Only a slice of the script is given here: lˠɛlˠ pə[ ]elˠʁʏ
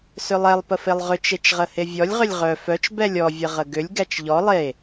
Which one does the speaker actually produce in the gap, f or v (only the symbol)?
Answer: f